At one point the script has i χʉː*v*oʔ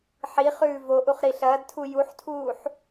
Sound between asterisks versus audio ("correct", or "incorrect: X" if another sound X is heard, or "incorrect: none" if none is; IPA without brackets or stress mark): correct